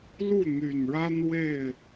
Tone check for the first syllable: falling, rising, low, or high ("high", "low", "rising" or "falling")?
falling